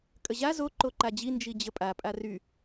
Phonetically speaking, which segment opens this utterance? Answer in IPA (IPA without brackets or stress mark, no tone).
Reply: kʼ